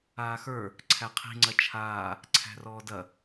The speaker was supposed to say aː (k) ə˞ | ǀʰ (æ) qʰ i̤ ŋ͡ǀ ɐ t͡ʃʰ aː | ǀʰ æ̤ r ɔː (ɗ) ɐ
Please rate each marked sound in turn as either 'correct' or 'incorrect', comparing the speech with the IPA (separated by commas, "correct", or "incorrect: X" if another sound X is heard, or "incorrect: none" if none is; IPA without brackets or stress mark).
incorrect: x, correct, incorrect: d